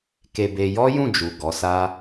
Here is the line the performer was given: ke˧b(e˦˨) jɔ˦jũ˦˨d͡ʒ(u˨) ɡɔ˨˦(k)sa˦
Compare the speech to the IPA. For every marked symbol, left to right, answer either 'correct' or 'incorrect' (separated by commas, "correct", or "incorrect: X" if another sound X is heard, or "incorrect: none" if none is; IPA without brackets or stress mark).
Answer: incorrect: e˧, correct, incorrect: none